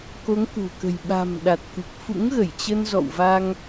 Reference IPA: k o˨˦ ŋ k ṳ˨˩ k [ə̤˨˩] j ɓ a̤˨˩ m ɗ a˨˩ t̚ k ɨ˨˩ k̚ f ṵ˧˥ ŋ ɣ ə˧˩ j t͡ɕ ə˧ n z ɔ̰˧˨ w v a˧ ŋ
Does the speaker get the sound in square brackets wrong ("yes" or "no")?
no